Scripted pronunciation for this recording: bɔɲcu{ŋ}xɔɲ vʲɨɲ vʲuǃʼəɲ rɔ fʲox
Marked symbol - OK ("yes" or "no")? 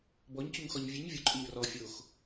yes